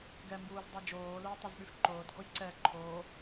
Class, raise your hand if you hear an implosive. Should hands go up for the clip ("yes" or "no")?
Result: yes